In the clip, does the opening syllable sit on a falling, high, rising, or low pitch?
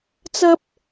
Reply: high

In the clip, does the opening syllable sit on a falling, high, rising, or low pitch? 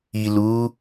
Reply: low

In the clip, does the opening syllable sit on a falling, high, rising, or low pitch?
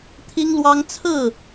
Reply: high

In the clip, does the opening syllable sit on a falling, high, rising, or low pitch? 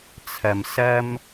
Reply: low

